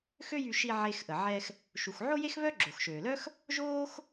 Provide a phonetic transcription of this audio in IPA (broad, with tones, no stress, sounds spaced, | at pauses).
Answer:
x ø˥ j y˧ ʃ i˧ ʕ e˧ x ʔ ə˩ ʕ ɛ˧ x | ʃ u˩ x ʕ o˥ j e˥ x β œ˥ ɡ͡ǁ o˩ x ʃ øː˩ l œ˥ x | ʒ oː˥ x